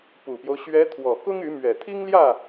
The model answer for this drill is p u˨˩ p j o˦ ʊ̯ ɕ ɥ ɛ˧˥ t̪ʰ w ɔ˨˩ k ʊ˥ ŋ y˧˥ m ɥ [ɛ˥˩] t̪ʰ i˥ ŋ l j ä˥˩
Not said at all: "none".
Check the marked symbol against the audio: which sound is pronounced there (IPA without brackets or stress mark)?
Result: ɛ˨˩